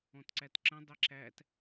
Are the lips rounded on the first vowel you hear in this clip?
yes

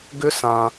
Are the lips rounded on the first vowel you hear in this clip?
yes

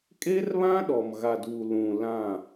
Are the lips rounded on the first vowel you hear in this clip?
no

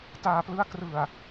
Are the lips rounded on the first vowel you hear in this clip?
no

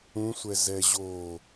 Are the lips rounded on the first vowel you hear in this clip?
yes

